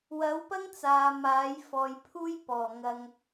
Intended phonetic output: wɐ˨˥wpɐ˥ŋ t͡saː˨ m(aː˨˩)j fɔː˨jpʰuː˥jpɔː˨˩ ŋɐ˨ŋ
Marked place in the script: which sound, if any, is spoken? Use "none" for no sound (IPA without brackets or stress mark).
aː˨˥